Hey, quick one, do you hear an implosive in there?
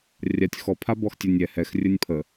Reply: no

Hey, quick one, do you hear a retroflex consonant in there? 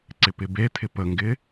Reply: no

